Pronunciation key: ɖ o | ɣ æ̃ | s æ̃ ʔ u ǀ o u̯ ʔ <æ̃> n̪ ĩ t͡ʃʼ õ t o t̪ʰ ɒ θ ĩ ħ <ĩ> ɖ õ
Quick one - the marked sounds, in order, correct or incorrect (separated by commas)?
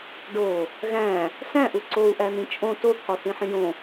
incorrect, correct